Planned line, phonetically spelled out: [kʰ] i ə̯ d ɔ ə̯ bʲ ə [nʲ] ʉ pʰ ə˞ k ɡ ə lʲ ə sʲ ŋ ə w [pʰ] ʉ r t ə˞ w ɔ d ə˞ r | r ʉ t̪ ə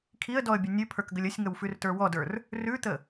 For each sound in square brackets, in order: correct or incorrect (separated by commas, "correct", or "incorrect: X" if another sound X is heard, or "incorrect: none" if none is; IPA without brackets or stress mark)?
correct, correct, incorrect: f